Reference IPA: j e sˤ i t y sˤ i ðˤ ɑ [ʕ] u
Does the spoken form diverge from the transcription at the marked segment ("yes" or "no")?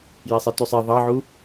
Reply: no